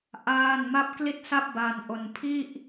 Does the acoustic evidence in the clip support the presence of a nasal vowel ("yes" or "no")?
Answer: no